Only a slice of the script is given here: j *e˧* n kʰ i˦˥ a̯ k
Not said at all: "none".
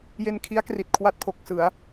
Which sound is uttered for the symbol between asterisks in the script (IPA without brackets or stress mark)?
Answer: e˧